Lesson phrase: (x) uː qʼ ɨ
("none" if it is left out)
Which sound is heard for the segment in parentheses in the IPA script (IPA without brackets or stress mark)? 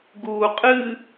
ɡ